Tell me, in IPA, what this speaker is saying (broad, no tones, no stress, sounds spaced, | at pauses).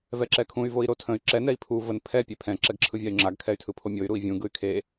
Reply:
v ɛ ǁ ɛ kʰ ũ y̯ v o i̯ ɾ o tʰ ə̃ y̯ ǁ ɛ n ɛ i̯ pʰ u v ə n pʰ ɛ pʲ e pʰ ɛ̃ ǁ ɛ ɡ ǁʰ ɯ vʲ a y̯ ŋ͡ǁ a ɡ kʰ ɛ y̯ tʰ ɯ pʰ o mʲ o y̯ ɾ u i̯ vʲ ũ ɡ ɯ y̯ kʰ e